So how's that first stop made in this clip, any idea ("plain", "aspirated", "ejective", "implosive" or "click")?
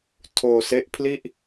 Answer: aspirated